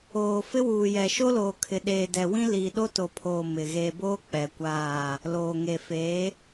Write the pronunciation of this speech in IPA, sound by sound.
oː˨ f ɪ˦ w uː˨ j ɛ˨ ʃ o˦ l oː˨ kʰ ɪ˨ ɗ eː˨ d ɛ˨ w ĩ˦ l iː˨ ɗ o˦ t o˨ pʰ oː˨ m ɪ˨ ɣ eː˨ b oː˦ k͡p ɛ˨ kʷ aː˦˨ | l oː˨ ŋ e˨ f e˨˦

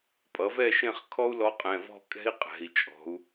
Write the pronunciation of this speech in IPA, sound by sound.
pʼ ʌ˩˥ v ɛ˥˨ ʃ ẽ˥˨ χ kʰ ɔ˥ u̯ l ɔ˧˥ qʼ ɛ̃˩˧˩ v ɔ̤˥˨ kʼ ɛ̤˥ i̯ qʼ ɛ̤˩˧˩ i̯ t͡ʃʼ ɔ̤˩˧ u̯

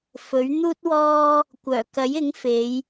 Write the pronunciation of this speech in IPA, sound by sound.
f ɵ˨˥ ɥ n̪ uː˥ t̚ w ɔː˥ | kʷ œː˨˩ k ɐ˨˥ j ɪ˨˥ ŋ f e˨˧ j

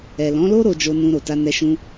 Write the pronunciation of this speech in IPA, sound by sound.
ɛ˨ l ɔ̃˨˦ l o˦ ɾ o˧ d͡ʒ o˧ n ũ˧ ɾ o˨ t a˧ n ɛ˧ ʃ ũ˧

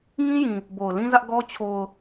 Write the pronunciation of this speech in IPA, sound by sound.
ŋ ĩ˦ j ĩ˨ | b o˨ ʊ̯ l ĩ˦ z ä˦ ʔ ɡ ɔ˦ t͡ɕʰ o˨ ʊ̯

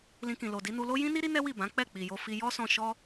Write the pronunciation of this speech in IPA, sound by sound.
l ĩ˧ k ĩ˨ l o˨ d i˨˦ n u˧ l o˦ j ĩ˦ n i˦ ɾ i˦ n ɛ˦ w i˦˨ b ã˨˦ k͡p ɛ˦˨ k͡p i˨ j o˧ f i˧ j ɔ˦ s ɔ̃˧ ʃ ɔ˦

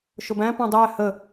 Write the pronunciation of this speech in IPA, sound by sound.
ʃ ʊ b æ̃ p ɔ̃ dˤ æ h ə

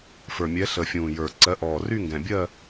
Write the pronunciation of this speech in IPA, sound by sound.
f ə˞˨˩ mʲ ɛ˨˦ ɬ ə˨˩ fʲ ũː˨˩ j ə˞˨˩ ǀ ɜ˨˦ ʔ ɔː˨˩ r y˥˧ ŋ ɡ ɛ̃˨˩ bʲ ɜ˥˧

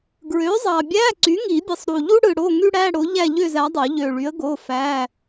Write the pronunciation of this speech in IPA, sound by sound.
ɡ ɹ ø˩˥ zˤ ɑ˨˩ bʲ æ˧˥˧ ǀ y˩˥ ŋ i˨˩˦ bʲ ɯ˨˩ sˤ ɾ u˨˩ ʎ u˥ ɽ ɯ˨˩ ɽ o˧˥˧ ŋ y˥ ɽ æ˧˥˧ ɽ o˩˥ ʎ æ˥˨ ʎ ø˥˨ z æ˩˥ dˤ o˨˩˦ ʎ ø˨˩ ɭ y˩˥ ə̯ ɡ o˧˥˧ f æ˧˥˧

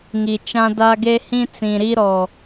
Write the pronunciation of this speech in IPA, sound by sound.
ŋ i˨ t͡ʃ ã˦ d a˦ ɡ e˦ h ĩ˦ t͡s ĩ˨ ɾ i˦ ɾ ɔ˨

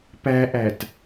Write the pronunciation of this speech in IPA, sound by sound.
p æ ʔ æ t

